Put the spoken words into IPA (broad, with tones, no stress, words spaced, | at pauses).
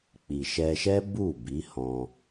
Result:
k͡pi˨ʃɛ˧ ʃɛ˦bu˦˨ bi˨˦hɔ̃˧